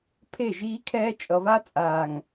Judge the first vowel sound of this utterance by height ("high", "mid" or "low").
mid